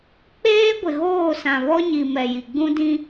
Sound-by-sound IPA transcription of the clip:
k͡peː˦ɡʷɪ˨ɣoː˦˨sã˨ βɔ˦ɲi˨ mɛ˨ji˨ ɡ͡bũ˦dĩ˦

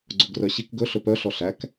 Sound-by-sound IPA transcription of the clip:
ɡ͡ǀoɡrœɕik ɡɵ ɬɵpœ ɬɔɬæk

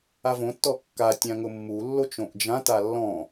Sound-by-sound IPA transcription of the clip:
avõtːɔ kːatʲã ŋʊmːulːot͡ʃ õʔd͡ʒãta lːɔ̃

